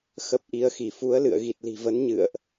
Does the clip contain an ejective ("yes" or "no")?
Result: no